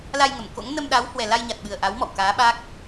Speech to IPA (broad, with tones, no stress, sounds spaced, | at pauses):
l a˧ j ŋ ə˧˩ m k o̰˧˥ ŋ n ə˧ m ɗ a˨˦ w h w ɛ˨˩ l a˧ j ɲ a˨˩ t̚ ɓ ɨ˨˩ ə̯ ʔ a˨˦ w m ɔ̰˧˨ w k aː˨˦ ɓ a˦˥ k̚